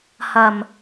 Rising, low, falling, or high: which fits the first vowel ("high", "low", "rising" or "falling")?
low